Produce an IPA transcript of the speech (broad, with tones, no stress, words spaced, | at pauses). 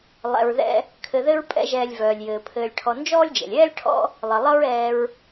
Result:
lˠɛ̰˨ɹðɛ̰˦ | kʰɘ˨ðɘ˦ɹ pʼɛ̰˦ʒɛː˨lʲvœː˩lʲjɘː˩ pʰɘː˨lʲʈʰɔ˨nd͡ʒɔː˥lʲd͡ʒɛ̰˩lʲ ɛː˥lʲʈʰɔ̰˦ | lˠɘ˩lˠʌ˦ɹɛː˨ɹ